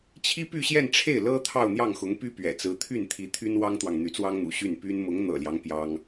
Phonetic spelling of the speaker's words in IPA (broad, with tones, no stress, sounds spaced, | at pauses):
t͡ɕʰ i˥ p y˥˧ ɕ j ɛ˥˧ n ʈ͡ʂʰ e˥˩ ɪ̯ l ɤ˥ t̪ʰ ɑ˥˧ ʊ̯ n̪ j ɑ˥˩ ŋ x ʊ˧˥ ŋ p y˥ p ɥ ɛ̰˨˩ t͡s ɹ̩˧˥ t̪ʰ y˥˩ n t̪ʰ i˧˥ t̪ʰ y˥ n w ɑ˥ ŋ t̪ w ɑ˨ ŋ n̪ y˧˥ t͡s w ɑ˥ ŋ n̪ ṵ˨˩ ɕ y˥˩ n p y˥ n m ʊ˧˥ ŋ n̪ ɤ̰˨˩ l j ɑ˦ ŋ p j ɑ˥ ŋ